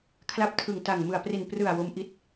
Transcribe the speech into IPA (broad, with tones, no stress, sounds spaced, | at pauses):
kʰ l a˦˥ p̚ tʰ ɯ˨˩ ŋ t a˨˩ ŋ m ɯ˨˩ a̯ p r i˨˩ n p r ɯ˨˩ a̯ w o˦˥ m ʔ i˦˥ t̚